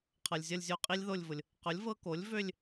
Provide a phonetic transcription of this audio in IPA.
qʰ ʌ˨ lʲ zʲ ʌ˥˧ lʲ zʲ o˥˧ qʼ i˦˥ lʲ ð o˥˧ lʲ v ʊ˨ lʲ | q ʊ˩˥ lʲ v ɤ˦˥ k o˩˥ lʲ v ø˥˧ lʲ

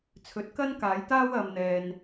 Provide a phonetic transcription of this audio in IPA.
t͡sʰ ɵ˨˥ t̚ k ɐ˥ n k aː˨˥ j t̪ aː˥ w ɐ˧ m n̪ ɛː˧ n

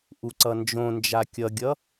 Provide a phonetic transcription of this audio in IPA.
ʔ u ǀ ʌ n d͡ʒ õ n d͡ʒ a kʲ ʌ ɡʲ ʌ

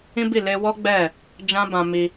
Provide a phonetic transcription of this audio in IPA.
ĩ˦ b i˦˨ l e˧ w ɔ˦ ɡ͡b ɛ˦˨ | d͡ʒ ã˦ b ã˧ m i˧

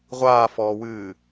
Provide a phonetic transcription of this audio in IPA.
ʁʷ aː f ɔː w ɨː

